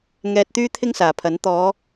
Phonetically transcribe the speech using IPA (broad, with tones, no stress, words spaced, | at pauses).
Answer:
ŋɛː˧t̚t̪yː˥ t̪ʰɪ˥ŋsaː˨˩pʰɐ˨˥n t̪ɔː˨˧